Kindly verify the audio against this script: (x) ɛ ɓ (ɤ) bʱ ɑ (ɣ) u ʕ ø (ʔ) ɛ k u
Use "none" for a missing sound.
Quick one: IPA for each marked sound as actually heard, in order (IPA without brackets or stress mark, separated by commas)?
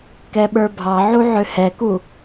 k, ə˞, ʕ, h